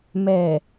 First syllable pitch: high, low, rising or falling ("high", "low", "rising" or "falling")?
low